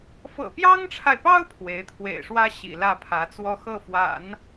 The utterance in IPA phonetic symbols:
f ɤ̰˨˩ p j ɑ˥ ŋ ʈ͡ʂʰ a˨ ɪ̯ p ɑ˥ ʊ̯ pʰ w e˧˥ ɪ̯ t̪ʰ w ḛ˨˩ ɪ̯ ʂ w ä˥ ɕ ḭ˨˩ l ä˥˩ pʰ ä˧˥ t͡s w ɔ˥˧ x ɤ˥˩ f w a̰˨˩˦ n

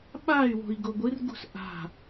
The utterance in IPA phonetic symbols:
ɓ a y̯ w o̤ i̯ ɡ o ɡʷ ɨ r ɡ ṳ s ʔ a̤

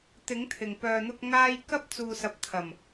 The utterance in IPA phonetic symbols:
t̪ ɪ˨˥ ŋ t̪ʰ ɪ˨˩ ŋ p œː˨ n̪ ʊ˧ k̚ ŋ aː˧ j k ɐ˥ p̚ t͡s uː˨ s ɐ˨ p̚ t̪ʰ ɐ˨˩ m

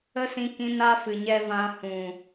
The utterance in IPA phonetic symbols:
ə˦ s ĩ˧ k ĩ˧ n a˦ f ɨ˨ ɲ ɛ˧ v ã˧ h ũ˨

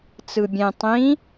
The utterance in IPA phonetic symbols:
t͡s ɯ bʲ ẽ tˤ ĩ

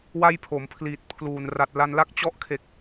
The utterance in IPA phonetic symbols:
w a˥˩ j pʰ o˩˦ m pʰ l iː˨˩ t̚ pʰ l uː˨˩ n r a˨˩ t̚ l a˧ n l a˥˩ k̚ t͡ɕ ɔ˦˥ ʔ kʰ e˨˩ k̚

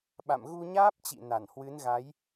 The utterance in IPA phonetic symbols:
ɓ a̰˧˨ m ɣ u˧ ɲ aː˦˥ p̚ t͡ɕ ḭ˧˨ n a˧˩ n h w ɨ˨˦ n ɣ a˨˦ j

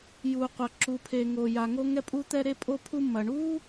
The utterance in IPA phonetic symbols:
j u˩ qʷ ɐ˩ ǁ u˩ pʰ e˩ ŋ o˩ j a˩ ŋ o˧ ŋ ɛ˧ pʼ u˧ t̪ ɛ˧ ɾ e˧ pʼ o˧ pʰ u˧ m ɐ˩ ɳ u˥

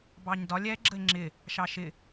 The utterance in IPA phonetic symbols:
b ɑ ɲ d ɒ lʲ ɛ ɡ͡ǁ ə e̯ ŋ͡ǁ ɪ | ʃ ɑ ʃ ɪ

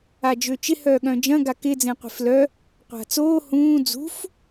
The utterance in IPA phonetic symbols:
a d͡ʒ ø t͡ʃ ɪ h œː ɠ œ̃ d͡ʒ ɐ̃ ɡ a k ɪ d͡z ẽ qʷ e̤ f l œ | qʷ a̤ t͡s oː h ũː d͡z ṳ f

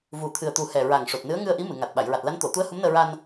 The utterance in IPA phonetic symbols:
v u˨˩ t̪ʰ ɨ˨˩ ə̯ t̪ u˨˩ h ɛ˨˩ ɹ a˨˩ ŋ ʂ o˨˩ t̚ n ɨ˧˥ ə̯ ŋ ɨ˧ ə̯ ʔ i˧˥ m ɨ˨˩˨ ŋ a˨˩ t̚ ɓ a˨˩˨ j ɹ a˨˩ t̚ l a˧˥ n t̪ o˨˩˨ t̪ u˧˥ ə̯ h u˧˥ m n əː˧ ɹ a˧ n

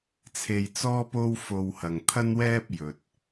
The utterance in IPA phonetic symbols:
t͡sʰ e˧ j t͡s ɔː˥ p o˥ w f o˧ w h ɐ˨ ŋ t̪ʰ ɐ˥ n w ɛː˥ p̚ j ɵ˨ t̚

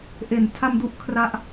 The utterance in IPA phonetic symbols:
ʔ e˩˦ n tʰ a˧ m d u˦˥ ʔ kʰ r a˦˥ ʔ

